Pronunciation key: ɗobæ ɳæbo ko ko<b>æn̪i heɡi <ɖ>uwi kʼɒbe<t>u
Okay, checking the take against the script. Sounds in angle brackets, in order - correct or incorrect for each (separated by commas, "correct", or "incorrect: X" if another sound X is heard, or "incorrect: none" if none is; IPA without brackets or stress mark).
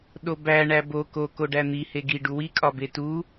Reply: incorrect: ɖ, correct, correct